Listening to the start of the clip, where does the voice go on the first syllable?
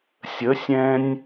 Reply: rising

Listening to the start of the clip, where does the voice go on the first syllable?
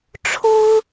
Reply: high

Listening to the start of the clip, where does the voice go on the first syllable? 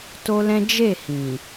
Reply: high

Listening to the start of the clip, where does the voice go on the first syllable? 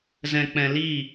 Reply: low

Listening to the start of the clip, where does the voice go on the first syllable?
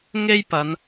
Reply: high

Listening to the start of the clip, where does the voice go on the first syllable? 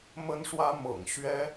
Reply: high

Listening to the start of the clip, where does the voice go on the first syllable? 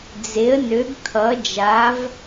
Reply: rising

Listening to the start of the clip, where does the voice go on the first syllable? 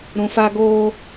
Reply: low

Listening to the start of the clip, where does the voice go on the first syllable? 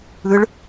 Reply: rising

